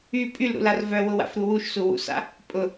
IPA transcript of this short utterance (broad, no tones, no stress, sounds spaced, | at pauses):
y pʼ y l ɾ ṵ l a r v œ w ʊ w a̰ f ɾ u w u ʃ s u w ṵ s a̰ | pʼ ʊ